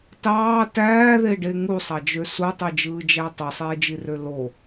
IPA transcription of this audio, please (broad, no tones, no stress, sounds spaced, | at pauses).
t ɑː t æː ð e ɖ e ŋ u sˤ ɑ d͡ʒ ø s u tˤ i d͡ʒ ɯː d͡ʒ æ tˤ ɯ sˤ eː d͡ʒ i r ø l o